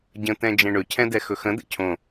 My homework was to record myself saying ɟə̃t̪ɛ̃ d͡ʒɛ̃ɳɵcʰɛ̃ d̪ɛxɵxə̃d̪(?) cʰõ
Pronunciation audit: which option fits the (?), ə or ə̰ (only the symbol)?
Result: ə̰